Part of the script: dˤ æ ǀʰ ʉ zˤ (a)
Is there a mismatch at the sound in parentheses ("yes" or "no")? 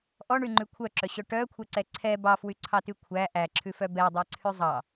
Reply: yes